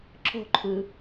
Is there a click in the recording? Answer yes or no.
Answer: yes